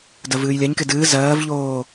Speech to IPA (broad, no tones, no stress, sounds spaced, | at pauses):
d ɜ v ɨː j lʲ a ɲ k e d ɨː z ɜː v ʎ oː